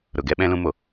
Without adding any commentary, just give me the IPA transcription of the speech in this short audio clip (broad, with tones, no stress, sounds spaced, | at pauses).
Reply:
ɾ ʊ˨ ɡ ɛ˧ ɓ ɛ̃˧ l ũ˧ m o˨